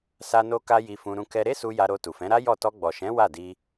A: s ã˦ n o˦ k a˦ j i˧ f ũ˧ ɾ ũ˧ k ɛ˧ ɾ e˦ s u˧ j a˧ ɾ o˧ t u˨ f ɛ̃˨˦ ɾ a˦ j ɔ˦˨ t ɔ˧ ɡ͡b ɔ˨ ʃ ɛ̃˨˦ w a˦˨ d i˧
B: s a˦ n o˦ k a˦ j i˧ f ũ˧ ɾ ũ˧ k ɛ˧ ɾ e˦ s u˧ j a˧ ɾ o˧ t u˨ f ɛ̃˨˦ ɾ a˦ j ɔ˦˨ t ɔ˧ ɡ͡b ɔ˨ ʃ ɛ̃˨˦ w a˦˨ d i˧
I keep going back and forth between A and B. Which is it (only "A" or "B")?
B